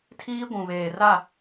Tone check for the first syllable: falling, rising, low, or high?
high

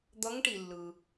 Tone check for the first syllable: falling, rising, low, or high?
rising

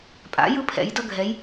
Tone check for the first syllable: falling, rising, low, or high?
rising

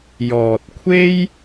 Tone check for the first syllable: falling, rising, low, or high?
low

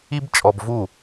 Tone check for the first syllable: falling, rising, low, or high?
high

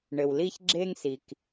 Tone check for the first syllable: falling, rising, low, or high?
low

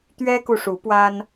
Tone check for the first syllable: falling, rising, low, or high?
high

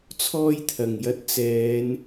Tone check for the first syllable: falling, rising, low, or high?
high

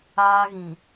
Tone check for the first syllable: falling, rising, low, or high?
high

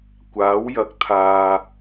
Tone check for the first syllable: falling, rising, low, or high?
rising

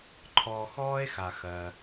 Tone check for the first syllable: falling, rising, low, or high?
low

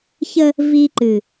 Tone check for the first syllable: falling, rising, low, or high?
high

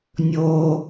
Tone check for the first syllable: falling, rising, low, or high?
low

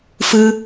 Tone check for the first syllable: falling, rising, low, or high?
high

